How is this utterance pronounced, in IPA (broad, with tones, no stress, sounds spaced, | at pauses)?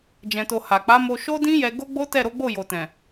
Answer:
d͡ʒ ɛ̃˨ t o˨ h a˨ k͡p a˨˦ m o˧ ʃ o˦ d ĩ˦ j ɛ˧ ɡ o˦ ɡ͡b o˦ t ɛ˦˨ ɾ o˨˦ ɡ͡b o˦˨ j o˨ t ɛ̃˨